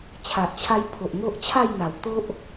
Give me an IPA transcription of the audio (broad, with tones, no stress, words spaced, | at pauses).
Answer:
t͡ɕʰa˨ʔt͡ɕʰa˧jpʰo˨ʔ ŋo˦ʔt͡ɕʰa˥˧jn̪a˨˩wt̪o˦ʔ